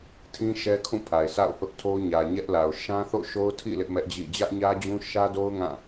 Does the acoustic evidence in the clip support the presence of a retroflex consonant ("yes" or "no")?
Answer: no